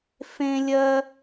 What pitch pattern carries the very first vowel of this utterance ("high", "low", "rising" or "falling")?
high